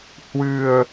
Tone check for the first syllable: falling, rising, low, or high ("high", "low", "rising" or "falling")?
low